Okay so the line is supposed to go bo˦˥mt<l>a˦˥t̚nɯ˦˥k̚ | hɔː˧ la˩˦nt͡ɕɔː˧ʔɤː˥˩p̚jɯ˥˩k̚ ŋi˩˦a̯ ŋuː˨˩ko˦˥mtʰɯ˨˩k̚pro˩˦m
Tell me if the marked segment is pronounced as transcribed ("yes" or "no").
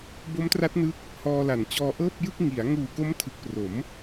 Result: no